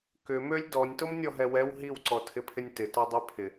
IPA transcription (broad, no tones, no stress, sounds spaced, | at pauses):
k ʏ m ø lʲ d ɔ nʲ t o m nʲ ɔ ɦ ɛ w ɛ w ɦ i w ǀ ɔ tʰ ɪ pʰ ɪ nʲ t ɪ t ɔ dˤ ø pʰ ɪ